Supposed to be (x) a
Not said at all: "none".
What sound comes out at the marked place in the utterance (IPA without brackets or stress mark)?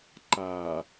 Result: ǃ